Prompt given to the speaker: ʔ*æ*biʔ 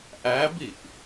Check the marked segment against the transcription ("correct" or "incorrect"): correct